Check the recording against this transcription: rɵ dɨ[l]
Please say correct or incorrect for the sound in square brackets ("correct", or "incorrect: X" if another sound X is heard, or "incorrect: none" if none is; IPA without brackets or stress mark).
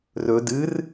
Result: incorrect: r